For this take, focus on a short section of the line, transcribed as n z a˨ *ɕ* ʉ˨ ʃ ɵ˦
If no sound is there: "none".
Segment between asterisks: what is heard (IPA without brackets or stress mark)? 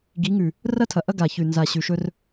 ɕ